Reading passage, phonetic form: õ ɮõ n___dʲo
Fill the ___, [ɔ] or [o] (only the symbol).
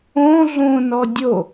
ɔ